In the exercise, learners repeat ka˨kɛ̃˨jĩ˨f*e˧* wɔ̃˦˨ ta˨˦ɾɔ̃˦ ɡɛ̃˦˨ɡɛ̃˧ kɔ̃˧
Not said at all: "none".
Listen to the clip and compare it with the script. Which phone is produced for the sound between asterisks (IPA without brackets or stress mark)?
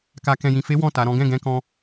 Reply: e˨˦